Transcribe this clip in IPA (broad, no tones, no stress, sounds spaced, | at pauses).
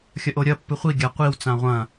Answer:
xʲ ɐ ʔ o ɾʲ ɐ pː ɨ χʷ i ɡʲ a qʷ i w t͡s ã ʁʷ ɐ̃